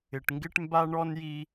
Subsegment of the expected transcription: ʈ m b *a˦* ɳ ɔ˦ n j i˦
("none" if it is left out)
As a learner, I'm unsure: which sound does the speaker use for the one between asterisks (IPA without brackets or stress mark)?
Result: a˦